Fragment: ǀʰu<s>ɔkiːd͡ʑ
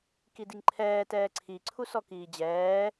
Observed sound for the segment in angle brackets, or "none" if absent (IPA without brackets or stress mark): s